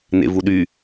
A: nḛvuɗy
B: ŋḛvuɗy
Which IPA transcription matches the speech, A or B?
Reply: A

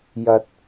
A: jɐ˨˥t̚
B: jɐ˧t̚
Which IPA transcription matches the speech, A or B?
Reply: B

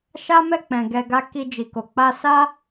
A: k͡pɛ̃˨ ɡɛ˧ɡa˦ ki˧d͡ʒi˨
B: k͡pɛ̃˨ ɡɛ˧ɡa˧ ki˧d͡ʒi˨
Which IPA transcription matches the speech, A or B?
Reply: A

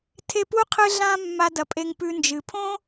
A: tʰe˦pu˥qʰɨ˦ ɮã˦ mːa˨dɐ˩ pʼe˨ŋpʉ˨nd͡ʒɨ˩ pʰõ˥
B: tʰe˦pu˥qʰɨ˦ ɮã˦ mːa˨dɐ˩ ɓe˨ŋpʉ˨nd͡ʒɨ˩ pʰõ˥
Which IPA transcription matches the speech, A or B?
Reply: A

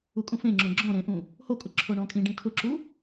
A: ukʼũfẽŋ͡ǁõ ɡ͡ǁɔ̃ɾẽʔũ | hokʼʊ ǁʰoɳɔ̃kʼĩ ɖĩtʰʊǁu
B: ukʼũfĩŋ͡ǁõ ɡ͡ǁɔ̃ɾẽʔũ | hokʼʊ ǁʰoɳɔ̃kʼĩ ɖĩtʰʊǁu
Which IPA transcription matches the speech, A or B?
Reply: A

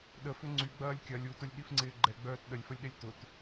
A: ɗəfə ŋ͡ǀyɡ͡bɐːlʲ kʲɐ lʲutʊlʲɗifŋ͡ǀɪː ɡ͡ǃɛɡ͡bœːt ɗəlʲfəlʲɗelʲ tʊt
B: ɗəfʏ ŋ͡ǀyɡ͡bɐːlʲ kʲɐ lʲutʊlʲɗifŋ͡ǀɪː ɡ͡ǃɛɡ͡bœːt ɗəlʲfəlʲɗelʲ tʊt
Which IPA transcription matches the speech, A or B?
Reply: B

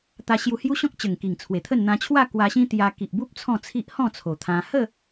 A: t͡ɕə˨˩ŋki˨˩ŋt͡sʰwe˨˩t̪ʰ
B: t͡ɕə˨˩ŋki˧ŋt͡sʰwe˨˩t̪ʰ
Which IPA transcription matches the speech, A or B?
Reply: A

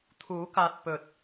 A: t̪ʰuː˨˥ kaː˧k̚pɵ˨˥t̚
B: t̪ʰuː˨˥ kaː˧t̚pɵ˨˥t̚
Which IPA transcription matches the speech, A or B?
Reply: B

